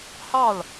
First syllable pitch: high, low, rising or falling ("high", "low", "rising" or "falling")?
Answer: falling